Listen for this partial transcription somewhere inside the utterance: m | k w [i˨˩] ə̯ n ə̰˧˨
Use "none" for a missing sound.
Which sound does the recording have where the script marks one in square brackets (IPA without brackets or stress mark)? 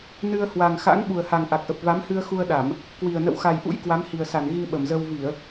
i˨˩